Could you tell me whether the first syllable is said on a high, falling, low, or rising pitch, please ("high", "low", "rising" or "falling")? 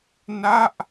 falling